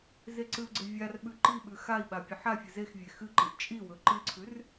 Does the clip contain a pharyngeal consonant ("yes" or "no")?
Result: yes